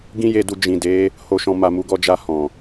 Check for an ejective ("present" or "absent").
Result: absent